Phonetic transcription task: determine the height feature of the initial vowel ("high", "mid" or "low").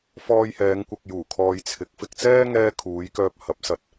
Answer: mid